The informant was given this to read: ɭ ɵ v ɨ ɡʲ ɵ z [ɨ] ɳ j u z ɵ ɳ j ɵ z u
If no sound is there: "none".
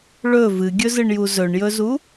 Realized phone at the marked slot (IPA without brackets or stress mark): ɨ